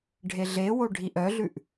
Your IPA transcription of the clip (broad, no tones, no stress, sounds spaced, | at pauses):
ɖʱ e ɮ e w o ɖʱ i ʔ œ ɮ ʉ ʔ